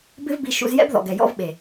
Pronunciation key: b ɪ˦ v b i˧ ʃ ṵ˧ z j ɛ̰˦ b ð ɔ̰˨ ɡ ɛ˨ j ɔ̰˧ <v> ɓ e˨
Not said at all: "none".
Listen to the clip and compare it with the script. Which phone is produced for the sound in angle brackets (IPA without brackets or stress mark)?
v